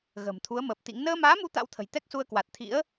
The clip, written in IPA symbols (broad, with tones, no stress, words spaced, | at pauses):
ɣə̤ː˨˩mt̪ʰu˨˦ə̯məː˨˩p̚ t̪ḭ˧˥ŋ nəː˧maː˨˦mu˨˦ t̪a̰˧˥wt̪ʰə̤˨˩j t̪ɛ˦˥k̚su˧ə̯kwa˨˩t̚ t̪ʰḭ˧˥ə̯